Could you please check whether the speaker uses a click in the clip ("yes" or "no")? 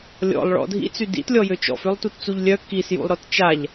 no